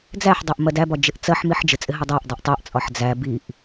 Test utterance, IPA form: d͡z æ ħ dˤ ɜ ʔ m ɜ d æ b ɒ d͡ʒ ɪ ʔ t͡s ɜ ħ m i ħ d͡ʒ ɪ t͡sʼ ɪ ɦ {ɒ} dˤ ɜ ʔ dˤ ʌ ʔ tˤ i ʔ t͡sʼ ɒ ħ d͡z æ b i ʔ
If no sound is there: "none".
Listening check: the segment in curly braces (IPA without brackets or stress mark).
ʌ